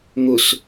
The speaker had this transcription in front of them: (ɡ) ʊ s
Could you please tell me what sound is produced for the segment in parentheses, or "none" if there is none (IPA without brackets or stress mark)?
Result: ŋ